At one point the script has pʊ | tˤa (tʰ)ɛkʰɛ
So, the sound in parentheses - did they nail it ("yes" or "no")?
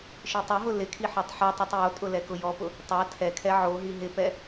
yes